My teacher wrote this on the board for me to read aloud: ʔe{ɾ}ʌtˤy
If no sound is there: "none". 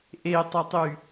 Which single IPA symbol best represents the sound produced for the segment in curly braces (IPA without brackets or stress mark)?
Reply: tˤ